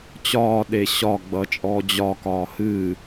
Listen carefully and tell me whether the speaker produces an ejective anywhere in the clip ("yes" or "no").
yes